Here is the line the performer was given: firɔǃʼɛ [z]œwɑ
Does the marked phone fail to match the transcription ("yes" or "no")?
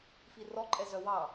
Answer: no